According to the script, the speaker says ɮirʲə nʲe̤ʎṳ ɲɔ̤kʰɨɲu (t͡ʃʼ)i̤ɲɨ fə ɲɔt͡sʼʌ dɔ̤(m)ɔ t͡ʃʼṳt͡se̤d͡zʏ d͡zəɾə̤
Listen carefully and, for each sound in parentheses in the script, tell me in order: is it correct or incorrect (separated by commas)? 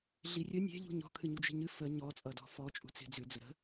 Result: incorrect, incorrect